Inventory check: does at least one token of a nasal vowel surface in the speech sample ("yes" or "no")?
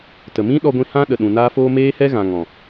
yes